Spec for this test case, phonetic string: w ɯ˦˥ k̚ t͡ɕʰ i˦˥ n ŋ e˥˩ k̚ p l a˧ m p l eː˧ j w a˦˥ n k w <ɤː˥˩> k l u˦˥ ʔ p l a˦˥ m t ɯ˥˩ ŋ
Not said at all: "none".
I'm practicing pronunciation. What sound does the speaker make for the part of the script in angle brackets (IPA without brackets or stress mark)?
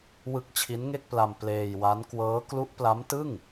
ɤː˦˥